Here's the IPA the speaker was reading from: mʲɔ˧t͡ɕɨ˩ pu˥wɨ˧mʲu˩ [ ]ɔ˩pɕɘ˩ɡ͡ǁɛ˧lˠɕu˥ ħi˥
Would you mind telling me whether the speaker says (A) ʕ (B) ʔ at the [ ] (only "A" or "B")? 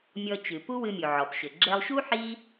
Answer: A